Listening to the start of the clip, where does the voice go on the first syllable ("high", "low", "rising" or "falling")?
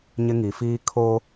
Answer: high